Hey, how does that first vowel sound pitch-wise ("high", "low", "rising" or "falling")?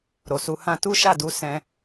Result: low